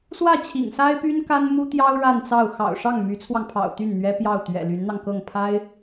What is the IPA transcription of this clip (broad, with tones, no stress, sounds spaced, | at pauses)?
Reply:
s w ä˥˩ t͡ɕʰ ḭ˨˩ ŋ s a˥ ɪ̯ p y˥ n k a˥ n m u˥ t̪ j ɑ˥ ʊ̯ ɻ a˥˧ n t͡s ɑ˥˩ ʊ̯ x ɑ̰˨˩ ʊ̯ ʂ ɑ˥˩ ŋ m y˧˥ t͡sʰ w ɑ˧ ŋ pʰ ɑ̰˨˩ ʊ̯ t̪ y˥˩ n n̪ ɥ ɛ˥ p j ɑ˥˩ ʊ̯ t̪ ɥ ɛ̰˨˩ l y˧˥ n n̪ ɑ˧ ŋ k ɤ˥˩ ŋ pʰ a˥ ɪ̯